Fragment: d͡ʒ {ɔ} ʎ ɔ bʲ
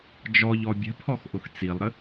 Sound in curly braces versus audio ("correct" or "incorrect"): correct